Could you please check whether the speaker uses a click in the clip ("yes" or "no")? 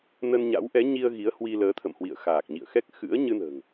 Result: no